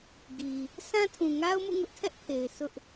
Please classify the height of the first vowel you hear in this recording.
high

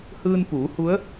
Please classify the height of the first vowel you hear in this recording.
high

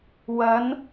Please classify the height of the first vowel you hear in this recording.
low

